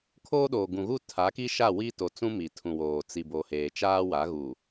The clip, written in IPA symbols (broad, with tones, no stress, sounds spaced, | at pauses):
kʰ oː˦ ɗ oː˨ ɡ ũ˨ ɣ u˦˨ tʰ a˨˦ k i˦ ʃ a˦˨ w i˦ t o˨ t͡s ũ˦ m i˨ tʰ ũ˨ w oː˨ t͡s i˨ b o˨ h eː˨ t͡ʃ aː˦ w a˨˦ ɣ u˨